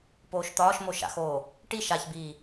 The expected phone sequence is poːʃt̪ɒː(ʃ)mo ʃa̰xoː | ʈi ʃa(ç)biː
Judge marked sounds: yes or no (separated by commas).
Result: yes, yes